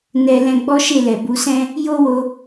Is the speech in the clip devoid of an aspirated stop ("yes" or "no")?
yes